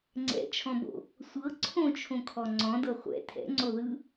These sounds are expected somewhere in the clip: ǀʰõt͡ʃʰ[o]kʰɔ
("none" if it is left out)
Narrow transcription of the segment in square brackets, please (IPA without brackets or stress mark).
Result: õ